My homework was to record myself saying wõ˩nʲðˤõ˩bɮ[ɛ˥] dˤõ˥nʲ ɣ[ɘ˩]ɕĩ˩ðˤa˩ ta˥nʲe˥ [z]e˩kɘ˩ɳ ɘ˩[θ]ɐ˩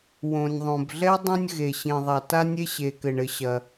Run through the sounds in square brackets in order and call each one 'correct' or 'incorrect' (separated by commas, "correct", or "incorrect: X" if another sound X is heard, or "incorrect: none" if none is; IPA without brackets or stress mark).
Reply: correct, incorrect: e˩, incorrect: ɕ, incorrect: ɕ